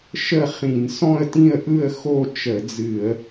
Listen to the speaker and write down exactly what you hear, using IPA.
ʃə˥˨χĩ˧˩˧n sɔ̃˥˨ə̯tĩ˥˨ə̯ʔɯ˥˨ə̯ xo˥˨t͡ʃə˧˩˧d͡zɨ˧˩˧ə̯

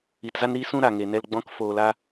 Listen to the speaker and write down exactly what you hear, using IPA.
i˨tza˦n ɾi˦sũ˦ ɾa˨ŋeː˨nɛ˧lɡ͡bɔ̃˦k foː˨la˧

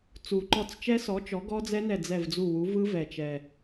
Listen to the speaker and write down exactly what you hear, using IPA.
t͡su˨˩ ǃɔ˦˨t͡st͡ʃɛ˦˥sɔ˨˥t͡ʃɔ˨˥ ɡɔ˦˥d͡zɛ˦˥nɛ˦˨ d͡zɛ˦˨vd͡zu˦˨wu˨˥ vɯ˦˥ vɛ˨˩t͡ʃɛ˨˩

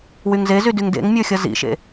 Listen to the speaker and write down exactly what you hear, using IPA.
wyŋzezy dyŋdḛŋmʲə˞ xʲʌzḭʃḛ

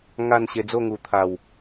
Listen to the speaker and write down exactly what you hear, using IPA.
ŋa˥˧nɕe˧ d͡zo˥˧ŋu˨˩t̪ʰa˨˩w

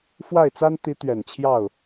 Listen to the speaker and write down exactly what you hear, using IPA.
fwa˥˩ɪ̯t͡sa˥n t̪i˧˥ t̪ɥɛ˨˩nt͡ɕʰjɑ˥˩ʊ̯

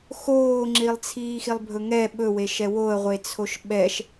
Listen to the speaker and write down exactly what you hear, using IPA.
xoːŋ͡ǁilˠt͡sʰiː xilˠbʱɵŋɛ ɓɵweʃɛ woə̯ʁʷe t͡sʰoʃɓɛʃ

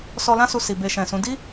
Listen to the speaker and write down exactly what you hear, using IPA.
sɔ˧lã˦ su˧ si˨be˧ʃɛ̃˨sũ˨˦ di˦

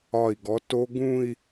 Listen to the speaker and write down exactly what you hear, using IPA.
ɒ˧˩i̯ ɡɔ˨˦to˦˥ɡũ˥˧i̯

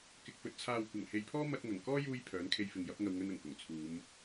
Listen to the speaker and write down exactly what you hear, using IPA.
kɪ˨k̚fɵ˨t̚ t͡sʰaː˨wkʷɐ˨˩ŋhe˨jpʰɔː˥ mɐ˧t̚ŋɐ˨˩ŋkɔː˥ juː˧j pʰœː˨˥nkʰe˧jfɪ˨ŋjɐ˨˥p̚ ŋɐ˨wŋɵ˧n ɐ˨˩ŋkʊ˨˩ŋ t͡sʰuː˨˧m

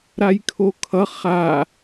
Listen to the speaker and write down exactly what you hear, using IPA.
ɾajkʰokʰʌ χa

